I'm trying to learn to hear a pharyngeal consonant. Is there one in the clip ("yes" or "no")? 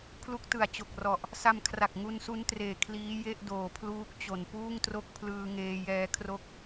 no